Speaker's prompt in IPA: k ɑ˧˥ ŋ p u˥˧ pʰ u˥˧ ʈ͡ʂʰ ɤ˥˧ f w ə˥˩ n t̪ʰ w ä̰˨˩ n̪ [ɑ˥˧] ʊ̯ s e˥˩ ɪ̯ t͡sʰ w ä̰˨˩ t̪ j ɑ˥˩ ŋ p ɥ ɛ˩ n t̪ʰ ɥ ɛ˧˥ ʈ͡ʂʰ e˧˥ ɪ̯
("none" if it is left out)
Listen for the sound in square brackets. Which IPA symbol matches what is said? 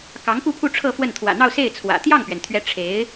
ɑ˥˧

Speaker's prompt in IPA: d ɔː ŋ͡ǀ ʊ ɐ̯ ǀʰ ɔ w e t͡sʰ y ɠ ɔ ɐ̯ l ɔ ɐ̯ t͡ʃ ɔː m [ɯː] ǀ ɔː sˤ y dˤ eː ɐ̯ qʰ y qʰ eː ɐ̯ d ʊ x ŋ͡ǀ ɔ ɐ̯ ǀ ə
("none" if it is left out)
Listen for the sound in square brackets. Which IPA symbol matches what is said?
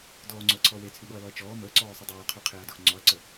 əː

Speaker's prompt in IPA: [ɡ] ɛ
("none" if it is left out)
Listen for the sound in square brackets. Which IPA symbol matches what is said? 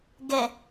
ɡ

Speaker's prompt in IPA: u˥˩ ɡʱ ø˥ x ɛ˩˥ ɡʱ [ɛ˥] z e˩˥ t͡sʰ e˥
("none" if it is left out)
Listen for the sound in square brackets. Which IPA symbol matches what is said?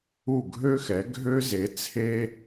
ø˥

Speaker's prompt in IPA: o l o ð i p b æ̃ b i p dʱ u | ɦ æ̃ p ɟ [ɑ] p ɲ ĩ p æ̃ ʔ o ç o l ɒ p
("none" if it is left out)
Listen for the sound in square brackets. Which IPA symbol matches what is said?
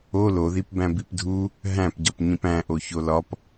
ɒ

